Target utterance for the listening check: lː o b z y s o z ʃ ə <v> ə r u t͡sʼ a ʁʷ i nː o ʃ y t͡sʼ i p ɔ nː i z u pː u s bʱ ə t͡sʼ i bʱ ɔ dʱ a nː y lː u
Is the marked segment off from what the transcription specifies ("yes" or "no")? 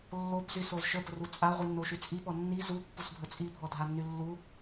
yes